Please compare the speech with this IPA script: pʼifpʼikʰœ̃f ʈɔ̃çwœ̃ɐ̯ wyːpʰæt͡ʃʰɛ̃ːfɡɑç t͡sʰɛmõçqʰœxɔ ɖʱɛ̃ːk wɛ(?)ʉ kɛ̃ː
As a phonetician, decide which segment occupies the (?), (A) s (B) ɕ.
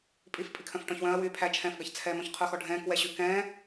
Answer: B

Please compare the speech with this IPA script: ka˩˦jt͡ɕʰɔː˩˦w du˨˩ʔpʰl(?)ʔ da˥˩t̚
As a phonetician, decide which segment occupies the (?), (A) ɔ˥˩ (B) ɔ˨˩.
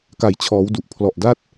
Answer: B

